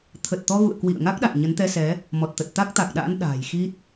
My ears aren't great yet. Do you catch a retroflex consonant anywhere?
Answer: no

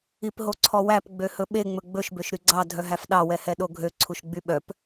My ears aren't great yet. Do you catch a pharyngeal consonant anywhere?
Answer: no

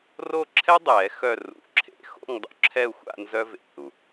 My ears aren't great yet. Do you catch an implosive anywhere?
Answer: no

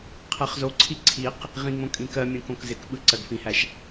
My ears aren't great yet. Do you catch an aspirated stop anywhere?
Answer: yes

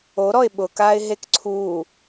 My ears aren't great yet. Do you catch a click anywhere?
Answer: yes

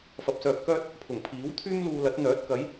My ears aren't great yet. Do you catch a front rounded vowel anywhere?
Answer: yes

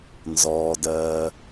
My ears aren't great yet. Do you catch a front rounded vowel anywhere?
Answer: no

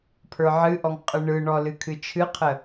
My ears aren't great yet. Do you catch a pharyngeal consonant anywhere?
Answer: yes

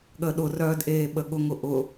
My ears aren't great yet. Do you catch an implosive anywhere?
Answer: yes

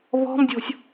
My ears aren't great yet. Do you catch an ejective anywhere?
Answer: no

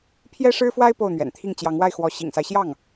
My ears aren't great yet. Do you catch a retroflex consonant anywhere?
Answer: yes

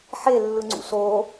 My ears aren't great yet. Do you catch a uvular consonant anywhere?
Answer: no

